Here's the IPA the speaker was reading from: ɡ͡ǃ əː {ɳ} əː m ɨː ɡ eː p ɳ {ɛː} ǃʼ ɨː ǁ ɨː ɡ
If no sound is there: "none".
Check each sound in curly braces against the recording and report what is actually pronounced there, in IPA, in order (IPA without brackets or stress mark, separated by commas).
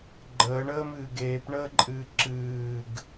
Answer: ɳ, əː